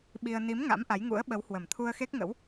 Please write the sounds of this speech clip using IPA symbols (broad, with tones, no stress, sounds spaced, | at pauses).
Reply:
ɓ i˧ ə̯ n i˨˦ m ŋ a̰˧˥ m ʔ a˨˦ j ŋ ṵ˧˥ ə̯ ɓ ə˨˦ w h w ə˨˩ m t̪ʰ u˧ ə̯ x e˦˥ k̚ ŋ ə̰˧˥ w